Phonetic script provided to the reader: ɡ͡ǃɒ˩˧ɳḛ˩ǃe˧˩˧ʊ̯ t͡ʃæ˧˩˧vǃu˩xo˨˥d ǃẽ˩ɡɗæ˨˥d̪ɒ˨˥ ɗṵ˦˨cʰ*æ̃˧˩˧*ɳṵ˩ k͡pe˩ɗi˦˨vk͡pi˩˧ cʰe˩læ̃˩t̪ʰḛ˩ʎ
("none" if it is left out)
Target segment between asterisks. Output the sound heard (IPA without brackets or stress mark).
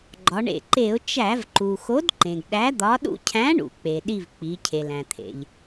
æ̃˨˥